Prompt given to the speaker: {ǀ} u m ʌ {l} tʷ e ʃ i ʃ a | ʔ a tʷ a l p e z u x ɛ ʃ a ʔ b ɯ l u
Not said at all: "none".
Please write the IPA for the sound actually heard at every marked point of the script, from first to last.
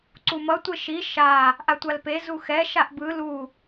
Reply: ǀ, none

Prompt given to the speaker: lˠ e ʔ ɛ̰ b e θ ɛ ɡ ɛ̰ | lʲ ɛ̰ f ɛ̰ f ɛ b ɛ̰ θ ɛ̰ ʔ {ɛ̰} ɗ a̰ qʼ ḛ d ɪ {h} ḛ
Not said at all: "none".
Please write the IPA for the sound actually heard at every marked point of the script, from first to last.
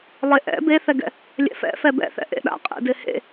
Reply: ḛ, h

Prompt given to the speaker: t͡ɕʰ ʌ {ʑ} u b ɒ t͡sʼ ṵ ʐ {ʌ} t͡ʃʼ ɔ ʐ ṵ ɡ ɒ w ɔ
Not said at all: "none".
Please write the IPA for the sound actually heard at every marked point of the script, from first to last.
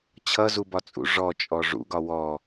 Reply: z, ɔ

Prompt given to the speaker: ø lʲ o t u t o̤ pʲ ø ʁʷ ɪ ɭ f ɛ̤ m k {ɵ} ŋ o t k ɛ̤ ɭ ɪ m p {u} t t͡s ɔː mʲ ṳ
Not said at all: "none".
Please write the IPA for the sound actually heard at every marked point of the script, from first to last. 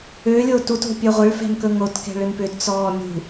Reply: ɵ, ʏ

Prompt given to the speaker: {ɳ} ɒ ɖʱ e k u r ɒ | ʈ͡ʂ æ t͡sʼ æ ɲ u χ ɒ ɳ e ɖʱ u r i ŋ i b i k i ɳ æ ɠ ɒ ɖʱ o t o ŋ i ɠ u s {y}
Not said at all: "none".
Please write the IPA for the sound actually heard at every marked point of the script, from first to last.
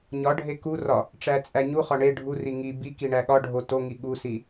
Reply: ɲ, i

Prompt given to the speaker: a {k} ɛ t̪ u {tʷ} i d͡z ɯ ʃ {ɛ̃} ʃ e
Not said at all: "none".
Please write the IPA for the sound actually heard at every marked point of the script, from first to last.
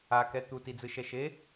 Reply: k, t, ɛ

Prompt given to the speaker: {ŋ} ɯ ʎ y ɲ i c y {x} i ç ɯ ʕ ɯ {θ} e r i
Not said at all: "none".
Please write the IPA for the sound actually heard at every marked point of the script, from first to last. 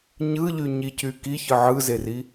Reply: ɲ, k, z

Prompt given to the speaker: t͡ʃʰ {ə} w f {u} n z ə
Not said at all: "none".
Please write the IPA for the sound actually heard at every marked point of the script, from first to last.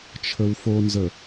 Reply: ə, o

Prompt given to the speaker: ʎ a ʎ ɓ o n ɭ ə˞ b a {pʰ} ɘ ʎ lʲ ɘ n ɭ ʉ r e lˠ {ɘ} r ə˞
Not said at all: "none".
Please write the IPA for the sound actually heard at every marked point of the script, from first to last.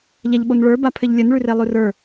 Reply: pʰ, ʉ

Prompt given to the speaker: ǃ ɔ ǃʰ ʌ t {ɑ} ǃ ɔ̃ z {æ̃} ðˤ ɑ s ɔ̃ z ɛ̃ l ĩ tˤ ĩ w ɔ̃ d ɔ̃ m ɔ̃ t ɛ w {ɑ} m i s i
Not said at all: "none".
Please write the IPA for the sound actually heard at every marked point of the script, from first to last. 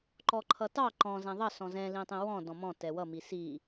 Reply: ɑ, æ̃, ʌ

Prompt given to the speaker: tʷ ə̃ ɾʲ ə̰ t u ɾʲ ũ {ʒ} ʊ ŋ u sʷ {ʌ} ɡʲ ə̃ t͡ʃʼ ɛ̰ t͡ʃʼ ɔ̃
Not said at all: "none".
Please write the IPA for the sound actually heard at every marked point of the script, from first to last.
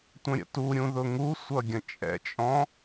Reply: ð, ʌ

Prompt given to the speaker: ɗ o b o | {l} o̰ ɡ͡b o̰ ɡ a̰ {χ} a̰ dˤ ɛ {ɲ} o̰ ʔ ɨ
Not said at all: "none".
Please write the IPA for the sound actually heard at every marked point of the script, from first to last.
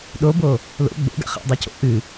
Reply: l, χ, c

